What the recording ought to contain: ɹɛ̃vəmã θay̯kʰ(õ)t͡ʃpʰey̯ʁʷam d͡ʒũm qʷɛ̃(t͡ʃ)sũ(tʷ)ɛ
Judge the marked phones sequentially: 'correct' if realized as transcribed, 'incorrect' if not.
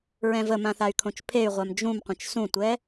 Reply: correct, correct, correct

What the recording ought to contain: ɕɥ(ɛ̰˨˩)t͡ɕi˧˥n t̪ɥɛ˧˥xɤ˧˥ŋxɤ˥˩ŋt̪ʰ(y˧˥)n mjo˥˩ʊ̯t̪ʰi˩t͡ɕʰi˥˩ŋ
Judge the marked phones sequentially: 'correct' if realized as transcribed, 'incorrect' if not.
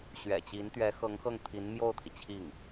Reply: correct, incorrect: i˧˥

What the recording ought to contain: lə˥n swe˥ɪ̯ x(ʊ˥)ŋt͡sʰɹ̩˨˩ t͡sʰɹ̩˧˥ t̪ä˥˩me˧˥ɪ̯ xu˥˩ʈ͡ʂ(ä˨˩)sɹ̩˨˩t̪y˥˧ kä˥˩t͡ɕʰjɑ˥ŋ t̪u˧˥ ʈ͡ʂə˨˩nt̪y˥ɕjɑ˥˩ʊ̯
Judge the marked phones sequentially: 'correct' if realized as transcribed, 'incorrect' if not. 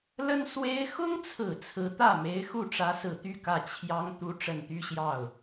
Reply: correct, incorrect: ä˧˥

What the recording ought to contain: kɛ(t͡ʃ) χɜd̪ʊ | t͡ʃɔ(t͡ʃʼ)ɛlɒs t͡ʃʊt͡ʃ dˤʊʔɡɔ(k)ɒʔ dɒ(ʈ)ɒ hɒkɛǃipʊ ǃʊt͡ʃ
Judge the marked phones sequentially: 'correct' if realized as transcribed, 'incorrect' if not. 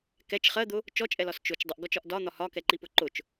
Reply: correct, correct, incorrect: t͡ʃ, incorrect: n̪

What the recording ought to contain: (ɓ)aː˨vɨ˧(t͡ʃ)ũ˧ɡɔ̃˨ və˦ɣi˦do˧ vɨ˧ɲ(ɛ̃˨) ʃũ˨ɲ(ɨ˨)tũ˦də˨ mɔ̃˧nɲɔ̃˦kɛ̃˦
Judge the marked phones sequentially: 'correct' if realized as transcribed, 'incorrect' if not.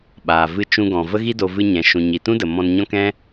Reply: correct, correct, correct, incorrect: i˨

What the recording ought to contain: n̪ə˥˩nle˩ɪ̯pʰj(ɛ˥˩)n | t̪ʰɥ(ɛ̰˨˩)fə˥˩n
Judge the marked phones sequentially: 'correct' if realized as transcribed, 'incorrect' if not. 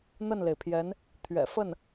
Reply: incorrect: ɛ˧˥, correct

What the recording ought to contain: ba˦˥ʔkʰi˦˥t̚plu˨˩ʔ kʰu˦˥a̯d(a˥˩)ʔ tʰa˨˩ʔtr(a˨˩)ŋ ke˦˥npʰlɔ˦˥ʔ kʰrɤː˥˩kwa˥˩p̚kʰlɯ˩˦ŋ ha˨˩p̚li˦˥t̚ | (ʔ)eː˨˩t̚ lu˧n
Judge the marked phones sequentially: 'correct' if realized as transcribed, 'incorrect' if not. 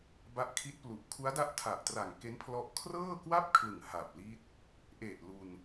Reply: incorrect: a˦˥, correct, correct

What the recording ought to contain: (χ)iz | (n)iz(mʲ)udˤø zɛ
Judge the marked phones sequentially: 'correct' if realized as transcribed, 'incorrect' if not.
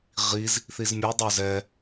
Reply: incorrect: ʁ, incorrect: θ, correct

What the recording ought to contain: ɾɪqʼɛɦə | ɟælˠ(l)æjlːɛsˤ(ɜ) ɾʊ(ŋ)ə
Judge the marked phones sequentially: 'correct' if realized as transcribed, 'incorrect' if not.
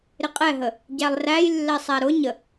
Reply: incorrect: r, incorrect: æ, incorrect: ɲ

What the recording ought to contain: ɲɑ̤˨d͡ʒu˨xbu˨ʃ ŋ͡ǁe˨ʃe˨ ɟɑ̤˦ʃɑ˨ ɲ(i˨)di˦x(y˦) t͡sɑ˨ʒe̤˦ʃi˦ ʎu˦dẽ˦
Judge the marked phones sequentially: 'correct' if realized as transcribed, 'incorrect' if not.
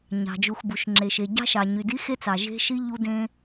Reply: incorrect: y˨, incorrect: e˦

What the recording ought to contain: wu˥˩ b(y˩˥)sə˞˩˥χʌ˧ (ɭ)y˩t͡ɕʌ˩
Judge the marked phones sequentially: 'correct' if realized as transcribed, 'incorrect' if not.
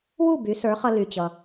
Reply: correct, incorrect: l

